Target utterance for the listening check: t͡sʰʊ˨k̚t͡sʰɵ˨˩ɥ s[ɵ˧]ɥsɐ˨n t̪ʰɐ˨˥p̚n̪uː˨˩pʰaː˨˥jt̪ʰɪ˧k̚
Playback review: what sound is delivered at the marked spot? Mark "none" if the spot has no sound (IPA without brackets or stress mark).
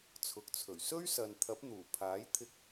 ɵ˥